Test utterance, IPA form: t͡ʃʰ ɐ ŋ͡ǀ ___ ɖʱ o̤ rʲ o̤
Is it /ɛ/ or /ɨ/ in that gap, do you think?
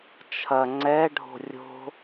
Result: ɛ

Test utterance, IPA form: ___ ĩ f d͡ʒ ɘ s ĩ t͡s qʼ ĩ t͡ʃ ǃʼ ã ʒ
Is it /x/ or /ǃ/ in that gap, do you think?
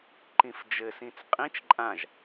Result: ǃ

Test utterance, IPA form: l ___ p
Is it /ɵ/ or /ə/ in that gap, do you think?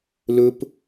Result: ɵ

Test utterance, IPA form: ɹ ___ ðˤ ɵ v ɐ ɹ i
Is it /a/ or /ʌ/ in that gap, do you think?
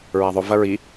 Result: a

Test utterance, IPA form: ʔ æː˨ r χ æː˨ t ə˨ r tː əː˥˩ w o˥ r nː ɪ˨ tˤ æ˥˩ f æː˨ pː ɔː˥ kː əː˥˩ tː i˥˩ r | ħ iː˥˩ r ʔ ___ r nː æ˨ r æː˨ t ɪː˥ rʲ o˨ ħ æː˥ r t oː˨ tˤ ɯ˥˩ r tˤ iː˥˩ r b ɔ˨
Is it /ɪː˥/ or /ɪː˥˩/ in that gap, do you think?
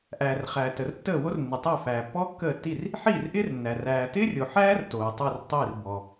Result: ɪː˥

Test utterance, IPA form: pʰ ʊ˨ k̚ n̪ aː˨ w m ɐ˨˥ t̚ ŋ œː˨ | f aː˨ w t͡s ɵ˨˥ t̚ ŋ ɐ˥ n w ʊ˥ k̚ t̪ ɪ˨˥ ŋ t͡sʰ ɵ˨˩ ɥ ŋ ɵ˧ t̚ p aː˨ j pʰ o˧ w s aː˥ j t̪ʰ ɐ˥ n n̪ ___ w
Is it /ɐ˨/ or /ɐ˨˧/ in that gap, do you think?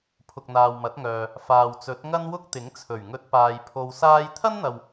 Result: ɐ˨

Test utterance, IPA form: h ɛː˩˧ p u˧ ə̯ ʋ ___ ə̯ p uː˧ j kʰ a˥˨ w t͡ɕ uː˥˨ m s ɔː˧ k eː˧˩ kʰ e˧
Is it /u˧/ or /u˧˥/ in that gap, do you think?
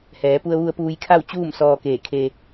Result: u˧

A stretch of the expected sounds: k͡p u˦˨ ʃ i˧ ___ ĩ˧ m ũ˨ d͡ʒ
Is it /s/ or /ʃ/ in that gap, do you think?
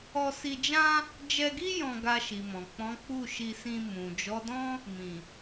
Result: s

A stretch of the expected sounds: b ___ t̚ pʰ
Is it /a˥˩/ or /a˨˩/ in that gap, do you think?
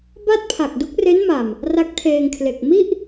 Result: a˥˩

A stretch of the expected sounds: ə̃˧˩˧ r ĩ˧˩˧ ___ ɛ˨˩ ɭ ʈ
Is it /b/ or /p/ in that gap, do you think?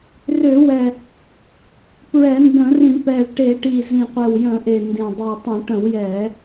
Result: p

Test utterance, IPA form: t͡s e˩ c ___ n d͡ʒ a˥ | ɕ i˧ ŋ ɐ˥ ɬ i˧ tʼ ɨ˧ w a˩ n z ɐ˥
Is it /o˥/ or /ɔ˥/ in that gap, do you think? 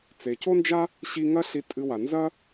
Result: o˥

